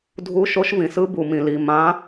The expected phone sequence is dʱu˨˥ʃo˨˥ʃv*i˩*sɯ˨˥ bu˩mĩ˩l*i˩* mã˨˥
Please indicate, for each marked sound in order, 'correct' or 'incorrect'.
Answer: incorrect: ĩ˩, correct

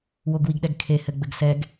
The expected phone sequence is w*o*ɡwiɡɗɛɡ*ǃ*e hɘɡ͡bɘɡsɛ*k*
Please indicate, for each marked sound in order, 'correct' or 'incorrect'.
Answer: correct, incorrect: kʰ, incorrect: ɡ

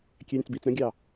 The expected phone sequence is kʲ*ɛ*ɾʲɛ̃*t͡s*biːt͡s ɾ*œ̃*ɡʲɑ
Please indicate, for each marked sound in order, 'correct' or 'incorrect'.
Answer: correct, correct, correct

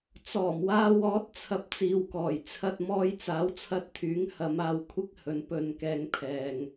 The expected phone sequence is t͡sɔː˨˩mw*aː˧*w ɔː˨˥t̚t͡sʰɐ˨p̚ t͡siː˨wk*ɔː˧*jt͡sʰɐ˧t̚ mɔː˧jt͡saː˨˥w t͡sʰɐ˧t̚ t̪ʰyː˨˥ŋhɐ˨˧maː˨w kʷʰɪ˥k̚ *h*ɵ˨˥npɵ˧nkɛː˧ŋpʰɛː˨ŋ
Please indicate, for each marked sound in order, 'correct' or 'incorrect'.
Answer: correct, incorrect: ɔː˨˩, correct

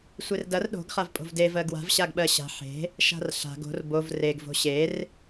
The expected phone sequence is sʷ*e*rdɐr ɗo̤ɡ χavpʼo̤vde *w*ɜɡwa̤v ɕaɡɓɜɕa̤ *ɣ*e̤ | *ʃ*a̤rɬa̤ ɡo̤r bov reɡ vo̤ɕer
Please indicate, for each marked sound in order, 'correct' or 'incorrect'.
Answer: correct, incorrect: v, incorrect: ħ, correct

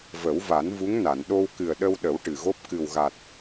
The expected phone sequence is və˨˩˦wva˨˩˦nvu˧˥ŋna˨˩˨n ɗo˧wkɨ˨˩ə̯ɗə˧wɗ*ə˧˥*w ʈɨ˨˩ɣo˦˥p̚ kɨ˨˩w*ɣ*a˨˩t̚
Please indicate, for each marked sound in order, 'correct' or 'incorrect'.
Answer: incorrect: ə˨˩˦, correct

